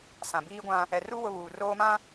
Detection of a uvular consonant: absent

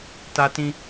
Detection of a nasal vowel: present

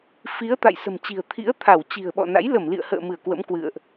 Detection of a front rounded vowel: absent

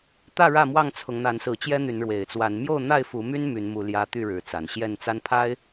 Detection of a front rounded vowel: present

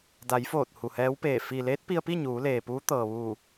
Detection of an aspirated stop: absent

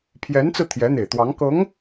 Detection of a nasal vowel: absent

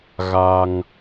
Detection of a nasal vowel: absent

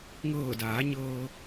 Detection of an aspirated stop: absent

